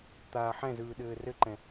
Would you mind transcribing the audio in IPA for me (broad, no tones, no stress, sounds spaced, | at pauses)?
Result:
t̪ aː ħ ɛ̃ z ɯː ɗ ɘː r ɘ ǃ ɛ̃